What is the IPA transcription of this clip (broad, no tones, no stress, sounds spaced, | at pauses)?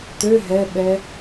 t ø ɦ ɛ ɓ ɛ